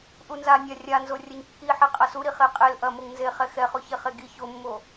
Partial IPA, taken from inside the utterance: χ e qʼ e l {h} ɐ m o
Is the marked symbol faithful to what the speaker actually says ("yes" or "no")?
no